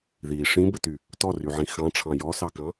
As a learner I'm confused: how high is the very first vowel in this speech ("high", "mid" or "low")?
high